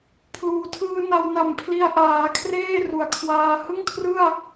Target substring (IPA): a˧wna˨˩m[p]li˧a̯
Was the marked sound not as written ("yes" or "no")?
yes